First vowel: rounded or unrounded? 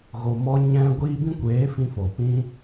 rounded